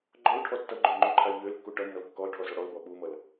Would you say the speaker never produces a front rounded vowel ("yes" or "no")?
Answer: no